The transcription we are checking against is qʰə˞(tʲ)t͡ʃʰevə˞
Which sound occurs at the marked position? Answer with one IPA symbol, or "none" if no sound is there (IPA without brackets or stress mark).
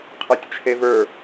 tʲ